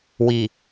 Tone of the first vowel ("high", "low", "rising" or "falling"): low